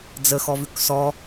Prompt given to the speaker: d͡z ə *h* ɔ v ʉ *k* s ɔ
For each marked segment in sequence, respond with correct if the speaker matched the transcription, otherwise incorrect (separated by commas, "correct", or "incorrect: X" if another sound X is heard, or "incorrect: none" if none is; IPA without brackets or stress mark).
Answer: incorrect: x, correct